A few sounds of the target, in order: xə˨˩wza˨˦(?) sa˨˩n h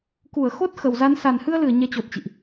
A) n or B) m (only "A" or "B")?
A